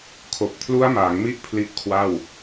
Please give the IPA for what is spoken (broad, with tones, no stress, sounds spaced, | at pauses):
kʰ o˨˩ k̚ pʰ l u˦˥ a̯ m a˩˦ ŋ m i˦˥ ʔ pʰ l i˦˥ ʔ kʰ w a˥˩ w